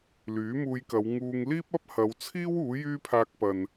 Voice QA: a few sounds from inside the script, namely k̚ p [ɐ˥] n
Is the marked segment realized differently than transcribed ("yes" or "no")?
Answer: yes